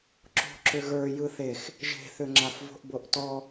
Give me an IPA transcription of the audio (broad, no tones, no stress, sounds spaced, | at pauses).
ǁ o̤ ǁ ʏ ɣ ə˞ j ɯ θ e x | ʒ e̤ θ ʏ ŋ͡ǁ a f v o̤ ʔ b o ʔ t ɔ